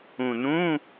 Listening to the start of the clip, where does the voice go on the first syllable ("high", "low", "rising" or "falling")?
low